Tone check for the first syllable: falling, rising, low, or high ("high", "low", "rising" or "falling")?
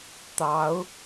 rising